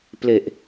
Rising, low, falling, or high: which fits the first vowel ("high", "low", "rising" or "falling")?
low